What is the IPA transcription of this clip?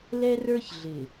l ɛ˦ r ə˞˦ ç ɮ ɪ˨

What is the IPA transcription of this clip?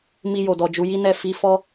m i˧ j o˨ d ɔ˨ d͡ʒ u˨˦ j i˦ n ɛ˦˨ f i˨˦ f ɔ˦

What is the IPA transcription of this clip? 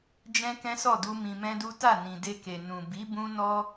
d͡ʒ ɛ̃˦ k ɛ̃˦ s ɔ˦˨ d u˧ m ĩ˧ m ɛ̃˦ d u˦ t a˦˨ n ĩ˨ d e˧ k e˨ n ũ˨ b i˨˦ b ũ˦ n ɔ˦

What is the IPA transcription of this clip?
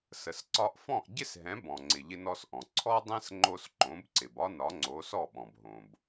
s ə˩ s ǀ ɒ˧ ʔ f ɔ̃˥˩ ʔ ɟ ɪ˥ s ɦ ɛ̃˩˥ b ɔ̃˩ ŋ͡ǀ ɪ˩ ʎ ɪ˧ n ɔ˧ s ʔ ɔ̃˩ ǀʰ ɔ˥ dˤ ɛ̃˥ s ŋ͡ǃ o˧ s ǃ õ˩˥ b ǀ ɪ˩ b ɒ˥ n ɒ˩˥ ŋ͡ǀ o˩˥ s ɔ˥˩ ɓ ɔ̃˩ b ɦ õ˩ b

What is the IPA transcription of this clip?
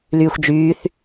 l yː xʷ d͡ʒ yː θ

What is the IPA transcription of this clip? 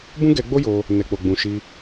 b ũ˦ ɡ ɛ˧ ɡ͡b o˦ j o˧ | n ɛ˨ k͡p o˨ ɡ͡b ũ˨ ʃ i˧

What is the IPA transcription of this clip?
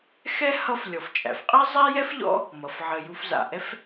x ɛ˥ h ʌ˦ f lʲ ɔ˩ f t͡ʃʼ æ̰˩ f qʼ ɛ˦ zˤ ɛ˥ j ɛ˥ f ʎ ɔ̰˦ | m ʌ˩ f ʕ ə˨ j u˨ f z a̰˩ ʔ ɛ˥ f

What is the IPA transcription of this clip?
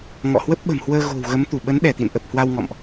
ŋ ɔ̰˧˨ h w ə˦˥ p̚ ɓ ə̤˨˩ m h w əː˧ ɣ o̤˨˩ w ɣ ə˨˦ m t̪ u˧˩ ɓ ə˨˦ n ɗ ɛ˧˩ t̪ ḭ˧˨ n ʔ ə˨˩ p̚ h w a˧ w ŋ ɔ̰˧˨ m ʔ

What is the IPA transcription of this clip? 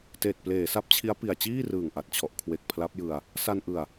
t eː˨˩ t̚ p l eː˩˦ s a˦˥ p̚ t͡ɕʰ i˦˥ a̯ p i˨˩ a̯ t͡ɕ iː˥˩ r ɯː˨˩ ŋ ʔ a˨˩ t̚ t͡ɕʰ ɔ˨˩ ʔ kʰ w e˨˩ k̚ pʰ l a˦˥ p̚ j ɯ˧ a̯ | s a˧ n ʔ ɯ˨˩ a̯

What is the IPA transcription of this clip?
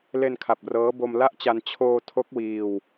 l e˧ n kʰ a˨˩ p̚ r ɤː˦˥ b o˧ m l a˥˩ ʔ t͡ɕ a˧ n t͡ɕʰ oː˧ tʰ o˦˥ k̚ w iː˧ w

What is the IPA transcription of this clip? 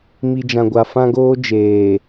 m i˨ d͡ʒ ã˨ ɡʷ a˨ f ã˦ ɡ oː˦ d͡ʒ eː˨

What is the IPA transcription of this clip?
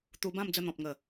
t̪ u˧ b ã˥˧ m d͡z ə˥˧ n̪ ɔ̃˨ p̚ ŋ ə˨˩

